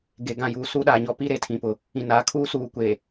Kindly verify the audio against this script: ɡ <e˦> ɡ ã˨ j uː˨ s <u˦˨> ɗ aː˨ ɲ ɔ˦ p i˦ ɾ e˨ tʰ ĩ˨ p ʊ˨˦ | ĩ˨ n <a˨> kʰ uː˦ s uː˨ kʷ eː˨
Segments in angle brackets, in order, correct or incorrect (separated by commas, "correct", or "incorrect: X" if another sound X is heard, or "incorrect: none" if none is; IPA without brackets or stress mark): incorrect: e˨, incorrect: u˦, incorrect: aː˨